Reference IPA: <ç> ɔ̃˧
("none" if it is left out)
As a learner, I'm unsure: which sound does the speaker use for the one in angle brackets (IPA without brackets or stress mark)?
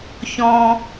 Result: ç